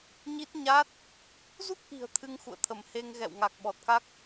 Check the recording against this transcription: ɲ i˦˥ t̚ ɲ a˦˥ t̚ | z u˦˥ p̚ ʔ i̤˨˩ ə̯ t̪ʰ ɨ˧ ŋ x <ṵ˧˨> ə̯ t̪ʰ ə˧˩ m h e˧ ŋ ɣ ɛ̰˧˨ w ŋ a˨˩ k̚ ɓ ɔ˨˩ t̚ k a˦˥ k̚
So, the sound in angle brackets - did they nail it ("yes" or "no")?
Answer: yes